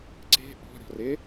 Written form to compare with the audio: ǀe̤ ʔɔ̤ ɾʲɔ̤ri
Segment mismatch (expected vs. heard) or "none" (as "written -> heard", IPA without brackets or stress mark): i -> ɪ